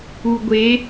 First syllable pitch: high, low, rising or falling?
low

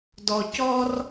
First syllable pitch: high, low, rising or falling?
low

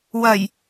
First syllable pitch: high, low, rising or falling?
low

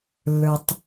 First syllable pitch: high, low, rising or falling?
low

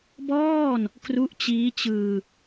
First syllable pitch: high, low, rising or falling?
falling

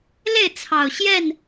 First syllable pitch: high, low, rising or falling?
falling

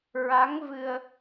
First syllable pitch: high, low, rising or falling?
rising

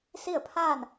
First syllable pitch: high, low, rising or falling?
falling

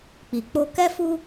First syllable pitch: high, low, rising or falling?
low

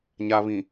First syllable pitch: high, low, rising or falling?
low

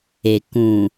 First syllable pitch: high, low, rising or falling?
low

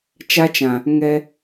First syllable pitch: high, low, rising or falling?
high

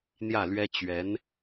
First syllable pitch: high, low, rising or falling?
falling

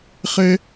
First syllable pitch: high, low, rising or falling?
high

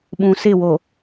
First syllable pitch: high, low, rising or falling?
low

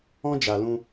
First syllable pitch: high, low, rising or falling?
high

